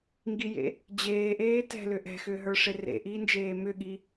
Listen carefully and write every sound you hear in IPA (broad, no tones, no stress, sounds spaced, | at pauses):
ŋ ɡ i j ḛ | d͡ʑ eː ʔ eː t ɛ̤ l ʏ ʔ ɛ̤ x ʏː ɦ ə˞ ʂ e r ḛ ʔ iː n d͡ʒ eː m ʏ ɠ i